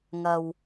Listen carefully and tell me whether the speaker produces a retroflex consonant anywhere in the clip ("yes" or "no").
no